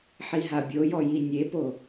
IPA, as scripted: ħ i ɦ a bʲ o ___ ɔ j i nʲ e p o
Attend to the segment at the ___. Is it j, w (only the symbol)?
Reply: j